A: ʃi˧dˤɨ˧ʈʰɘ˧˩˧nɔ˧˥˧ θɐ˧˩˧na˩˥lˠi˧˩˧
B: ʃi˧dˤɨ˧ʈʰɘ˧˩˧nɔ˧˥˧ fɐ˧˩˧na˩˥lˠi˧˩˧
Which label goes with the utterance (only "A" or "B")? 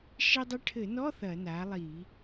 A